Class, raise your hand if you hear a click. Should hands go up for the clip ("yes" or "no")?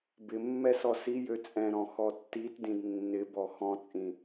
no